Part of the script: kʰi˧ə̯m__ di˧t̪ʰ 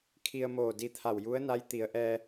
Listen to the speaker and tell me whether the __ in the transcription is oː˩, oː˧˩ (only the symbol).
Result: oː˧˩